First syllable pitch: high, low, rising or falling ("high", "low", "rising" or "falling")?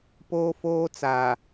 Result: high